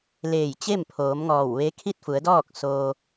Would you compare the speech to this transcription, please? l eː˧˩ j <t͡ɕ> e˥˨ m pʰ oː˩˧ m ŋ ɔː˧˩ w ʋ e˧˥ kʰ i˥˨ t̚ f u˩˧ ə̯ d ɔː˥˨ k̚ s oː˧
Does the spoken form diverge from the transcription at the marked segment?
no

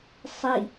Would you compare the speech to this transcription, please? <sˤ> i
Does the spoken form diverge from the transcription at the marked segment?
no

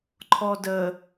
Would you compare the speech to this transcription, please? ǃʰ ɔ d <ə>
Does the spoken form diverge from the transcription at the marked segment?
no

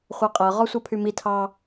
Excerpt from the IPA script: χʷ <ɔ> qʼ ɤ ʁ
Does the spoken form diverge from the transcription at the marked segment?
yes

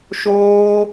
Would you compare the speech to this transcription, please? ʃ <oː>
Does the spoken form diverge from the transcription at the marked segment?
no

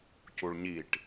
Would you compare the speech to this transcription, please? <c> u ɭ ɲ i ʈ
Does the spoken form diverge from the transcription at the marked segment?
no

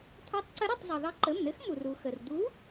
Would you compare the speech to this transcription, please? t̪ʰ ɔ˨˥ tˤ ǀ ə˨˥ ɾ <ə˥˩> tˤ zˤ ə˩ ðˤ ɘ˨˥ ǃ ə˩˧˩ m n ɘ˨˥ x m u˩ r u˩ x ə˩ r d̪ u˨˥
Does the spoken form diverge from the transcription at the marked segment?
no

